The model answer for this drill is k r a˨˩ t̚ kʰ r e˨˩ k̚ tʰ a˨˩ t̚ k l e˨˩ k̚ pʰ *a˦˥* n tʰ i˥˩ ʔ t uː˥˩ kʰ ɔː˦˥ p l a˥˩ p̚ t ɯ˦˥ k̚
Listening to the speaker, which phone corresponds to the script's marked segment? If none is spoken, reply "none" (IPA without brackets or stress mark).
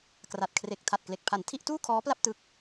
a˨˩